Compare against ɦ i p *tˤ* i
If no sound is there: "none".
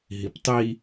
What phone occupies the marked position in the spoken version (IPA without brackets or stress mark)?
tˤ